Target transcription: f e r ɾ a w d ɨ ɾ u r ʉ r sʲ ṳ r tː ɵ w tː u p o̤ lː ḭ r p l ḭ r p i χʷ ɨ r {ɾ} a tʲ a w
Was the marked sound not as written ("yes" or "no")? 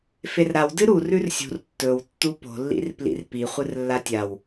yes